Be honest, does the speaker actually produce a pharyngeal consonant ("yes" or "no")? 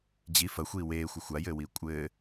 no